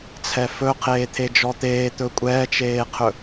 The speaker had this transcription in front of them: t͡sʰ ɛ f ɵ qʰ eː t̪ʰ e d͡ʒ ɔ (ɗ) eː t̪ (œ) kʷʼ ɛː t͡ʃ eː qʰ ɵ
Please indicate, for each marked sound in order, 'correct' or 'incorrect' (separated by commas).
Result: incorrect, incorrect